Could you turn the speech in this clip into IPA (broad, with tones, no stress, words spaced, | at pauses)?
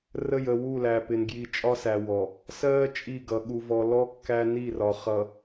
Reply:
rə˦˨jə˨ wu˦˨læ˨pɪ˨n ɡji˨t͡ʃʼɒ˦sæ˨ wɔ˨ | sɜː˦ t͡ʃʼi˦˨ɡʌ˨ ɠu˨vɔ˨lɔ˦ kːæ˦ ni˦˨rɒ˨ χʌ˨